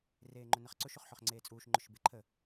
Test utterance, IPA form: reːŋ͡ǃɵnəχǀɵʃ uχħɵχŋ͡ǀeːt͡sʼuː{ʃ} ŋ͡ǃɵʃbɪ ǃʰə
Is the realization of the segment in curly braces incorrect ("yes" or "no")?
no